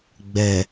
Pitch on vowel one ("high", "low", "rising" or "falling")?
low